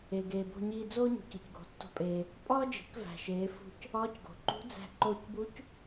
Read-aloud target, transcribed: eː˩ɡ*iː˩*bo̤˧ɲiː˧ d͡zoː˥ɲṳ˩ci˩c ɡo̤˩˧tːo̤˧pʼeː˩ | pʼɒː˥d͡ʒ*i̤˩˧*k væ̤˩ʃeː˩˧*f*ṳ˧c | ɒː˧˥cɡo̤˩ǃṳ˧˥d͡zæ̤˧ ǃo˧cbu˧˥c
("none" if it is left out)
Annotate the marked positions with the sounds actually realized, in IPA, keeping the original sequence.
eː˩, i̤˩˧, f

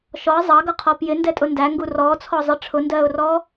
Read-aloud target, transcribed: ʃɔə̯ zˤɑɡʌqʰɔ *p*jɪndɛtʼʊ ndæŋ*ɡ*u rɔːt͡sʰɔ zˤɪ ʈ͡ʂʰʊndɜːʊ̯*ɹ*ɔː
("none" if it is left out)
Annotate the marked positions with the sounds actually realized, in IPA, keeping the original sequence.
p, ɡ, r

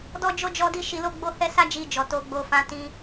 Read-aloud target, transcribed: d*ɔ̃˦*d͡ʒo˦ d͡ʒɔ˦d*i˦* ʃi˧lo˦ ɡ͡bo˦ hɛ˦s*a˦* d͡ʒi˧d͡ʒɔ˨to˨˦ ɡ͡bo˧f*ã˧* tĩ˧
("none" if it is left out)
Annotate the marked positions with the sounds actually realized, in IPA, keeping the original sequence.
ɔ˦, i˦, a˦, ã˧

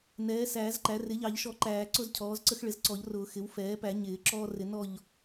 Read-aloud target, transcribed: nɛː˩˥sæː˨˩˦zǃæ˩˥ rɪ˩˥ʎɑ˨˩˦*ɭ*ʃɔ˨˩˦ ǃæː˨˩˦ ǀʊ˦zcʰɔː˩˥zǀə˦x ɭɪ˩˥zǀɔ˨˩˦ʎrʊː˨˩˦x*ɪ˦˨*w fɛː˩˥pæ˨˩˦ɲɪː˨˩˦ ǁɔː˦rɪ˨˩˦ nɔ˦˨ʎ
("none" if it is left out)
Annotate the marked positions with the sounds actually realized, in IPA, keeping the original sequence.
ʎ, ɪ˩˥

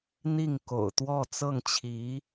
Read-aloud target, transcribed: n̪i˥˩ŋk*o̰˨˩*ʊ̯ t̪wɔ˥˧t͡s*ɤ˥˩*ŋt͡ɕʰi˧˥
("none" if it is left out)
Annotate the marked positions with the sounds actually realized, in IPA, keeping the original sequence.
o̰˨˩, ɤ˥˩

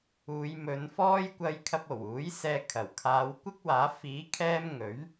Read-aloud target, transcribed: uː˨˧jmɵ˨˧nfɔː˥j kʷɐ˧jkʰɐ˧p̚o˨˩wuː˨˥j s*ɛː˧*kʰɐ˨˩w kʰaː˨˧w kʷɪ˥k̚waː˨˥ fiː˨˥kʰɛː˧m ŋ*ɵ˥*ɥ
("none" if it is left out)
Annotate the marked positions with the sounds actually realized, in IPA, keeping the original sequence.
ɛː˧, ɵ˨˥

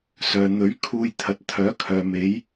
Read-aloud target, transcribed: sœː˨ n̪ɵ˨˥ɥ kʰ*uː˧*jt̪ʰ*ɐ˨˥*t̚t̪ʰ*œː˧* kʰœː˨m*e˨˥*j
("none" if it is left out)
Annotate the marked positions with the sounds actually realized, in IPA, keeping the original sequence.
uː˧, ɐ˨˥, œː˨˥, e˨˥

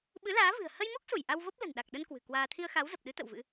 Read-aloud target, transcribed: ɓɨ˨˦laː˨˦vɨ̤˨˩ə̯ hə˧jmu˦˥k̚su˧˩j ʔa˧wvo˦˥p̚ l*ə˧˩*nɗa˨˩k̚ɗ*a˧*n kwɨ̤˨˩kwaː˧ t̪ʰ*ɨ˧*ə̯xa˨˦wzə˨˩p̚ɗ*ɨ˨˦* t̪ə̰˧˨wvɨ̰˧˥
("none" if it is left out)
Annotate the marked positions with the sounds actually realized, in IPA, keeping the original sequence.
ə̤˨˩, ə˧, i˧, ɨ˨˦

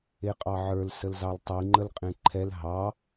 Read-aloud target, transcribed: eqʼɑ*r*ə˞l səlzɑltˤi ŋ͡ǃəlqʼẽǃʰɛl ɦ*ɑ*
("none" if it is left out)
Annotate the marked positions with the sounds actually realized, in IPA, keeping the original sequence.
ʕ, ɑ

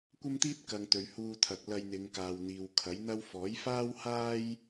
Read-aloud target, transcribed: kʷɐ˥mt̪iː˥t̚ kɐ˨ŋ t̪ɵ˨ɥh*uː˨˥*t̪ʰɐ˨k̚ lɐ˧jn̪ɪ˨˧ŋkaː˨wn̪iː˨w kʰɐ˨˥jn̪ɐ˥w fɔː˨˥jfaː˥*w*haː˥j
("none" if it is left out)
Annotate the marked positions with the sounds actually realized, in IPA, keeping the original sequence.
uː˧, w

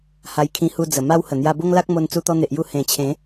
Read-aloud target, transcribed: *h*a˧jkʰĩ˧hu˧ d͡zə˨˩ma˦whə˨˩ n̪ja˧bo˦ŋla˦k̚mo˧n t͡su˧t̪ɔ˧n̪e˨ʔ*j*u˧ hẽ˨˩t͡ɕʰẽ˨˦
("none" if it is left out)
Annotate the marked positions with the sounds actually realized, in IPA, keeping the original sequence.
h, j

